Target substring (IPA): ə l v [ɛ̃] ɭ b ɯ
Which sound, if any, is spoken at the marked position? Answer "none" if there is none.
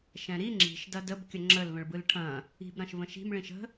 ə̃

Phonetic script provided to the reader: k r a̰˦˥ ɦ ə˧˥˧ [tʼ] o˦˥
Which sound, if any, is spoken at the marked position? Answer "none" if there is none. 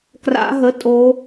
tʼ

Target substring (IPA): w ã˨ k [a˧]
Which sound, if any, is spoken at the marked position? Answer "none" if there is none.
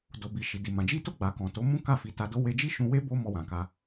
a˧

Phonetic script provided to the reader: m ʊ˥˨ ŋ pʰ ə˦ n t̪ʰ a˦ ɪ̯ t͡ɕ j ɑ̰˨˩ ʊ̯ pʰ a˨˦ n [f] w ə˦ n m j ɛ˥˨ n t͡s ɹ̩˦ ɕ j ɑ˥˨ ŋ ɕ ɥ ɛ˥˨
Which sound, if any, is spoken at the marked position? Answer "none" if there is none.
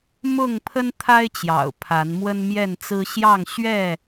m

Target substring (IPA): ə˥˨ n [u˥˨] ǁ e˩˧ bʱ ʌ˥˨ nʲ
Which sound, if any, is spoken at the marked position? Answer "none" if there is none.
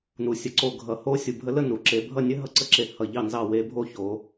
u˩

